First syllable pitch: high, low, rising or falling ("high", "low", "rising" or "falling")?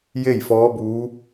falling